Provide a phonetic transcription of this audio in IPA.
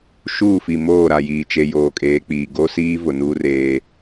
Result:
ʃ uː˦˨ f i˨ m oː˦˨ ɾ a˨ j iː˨ t͡ʃ e˨ j oː˨ kʼ eː˨˦ k͡p iː˨ ɡ o˦ s iː˦ v ʊ˨ n uː˦ r eː˦

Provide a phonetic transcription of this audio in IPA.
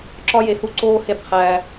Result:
ǁ ɒ˥ j e˧ h u˥ ǀ oː˥ h e˥ b qʰ æː˧

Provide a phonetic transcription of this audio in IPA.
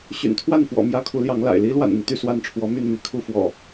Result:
ɕ y̰˨˩ n t̪ʰ w a˥˨ n f w ɔ̰˨˩ m j ä˦ kʰ u˨˦ l j ɑ˨˦ ŋ l a̰˨˩ ɪ̯ l i˦ l w a̰˨˩ n n̪ i˦ t̪ y˥˨ s w a˥˨ n ʈ͡ʂʰ w ɔ˨˦ m y˥˨ n m i˨˦ kʰ u˥˨ f w ɔ̰˨˩

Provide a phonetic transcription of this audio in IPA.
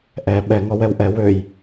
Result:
ʔ ɛ ɓ ɛ ŋ ɔ w ɛ w ʔ ɛ w ø j

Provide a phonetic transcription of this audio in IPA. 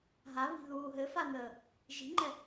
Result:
ɦ a β i̤ ð uː ɦ ɘ f a n əː | ʒ i̤ ŋ͡ǃ ɛ

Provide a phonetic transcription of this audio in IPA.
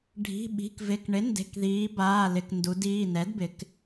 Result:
ɖʱ i̤˩˧˩ ɓ i̤˩˧˩ k v ɪ˩˧˩ k ɳ ɪ˩˥ n d e̤˩˧˩ k ð iː˩˧ b aː˩˧˩ l ɪ˩˧˩ k n d u˩˧ d iː˩˧˩ n ɛ˩˥ d b ɪ˩˧ k

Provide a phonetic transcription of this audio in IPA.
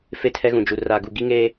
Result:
f e˦˨ tʰ ɛ˦ ɣ ũ˨ d͡ʒ u˨ r a˨ ɡ u˨ ɡ i˦ ŋ eː˦

